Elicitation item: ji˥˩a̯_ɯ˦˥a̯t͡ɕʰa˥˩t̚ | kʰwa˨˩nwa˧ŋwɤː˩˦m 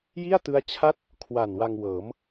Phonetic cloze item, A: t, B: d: A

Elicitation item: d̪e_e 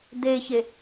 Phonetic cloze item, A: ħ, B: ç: B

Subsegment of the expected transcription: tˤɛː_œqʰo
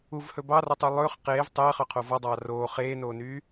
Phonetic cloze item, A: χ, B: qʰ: A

